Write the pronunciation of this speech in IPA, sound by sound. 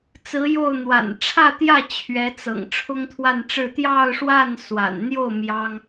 t͡s ɹ̩˧˥ j o˥˩ ʊ̯ n̪ w a̰˨˩ n ʈ͡ʂʰ ä˥˧ t̪ j ä˥˩ t͡ɕʰ ɥ ɛ˧˥ t͡s ɤ̰˨˩ ŋ ʈ͡ʂʰ ʊ˥ ŋ t̪ʰ w a˥˧ n ʈ͡ʂ ɻ̩˥˧ t̪ j ɑ˥˧ ʊ̯ ʂ w a˥˩ n s w a̰˨˩ n n̪ j o˥˩ ʊ̯ m j ɑ˥ ŋ

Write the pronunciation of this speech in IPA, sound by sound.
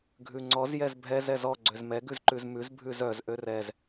ɡʱ ʉ ŋ͡ǀ ɔ z j ɛ z bʱ ɛ z ɛ z ɔ ɡ͡ǀ ø z m ɛ ɡ ʉ z ǃ ʉ z m ʉ z bʱ ʉ z œ z ʔ ø r ɛ z

